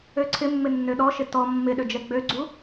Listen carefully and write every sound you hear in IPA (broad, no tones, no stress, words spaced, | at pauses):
øǀʰɪmːɪ nːøɗɔʃɪ tɔ mːɪɗø d͡ʒɛɡ͡bøɡ͡ǀu